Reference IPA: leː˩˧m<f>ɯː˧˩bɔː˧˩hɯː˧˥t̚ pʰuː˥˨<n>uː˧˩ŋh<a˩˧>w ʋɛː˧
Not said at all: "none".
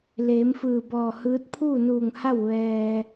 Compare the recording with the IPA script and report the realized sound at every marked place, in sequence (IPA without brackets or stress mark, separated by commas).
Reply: f, n, a˥˨